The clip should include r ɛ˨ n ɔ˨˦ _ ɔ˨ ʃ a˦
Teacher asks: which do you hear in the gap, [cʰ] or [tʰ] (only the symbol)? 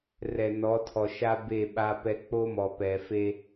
tʰ